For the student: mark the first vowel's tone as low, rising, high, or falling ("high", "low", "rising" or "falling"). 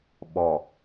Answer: low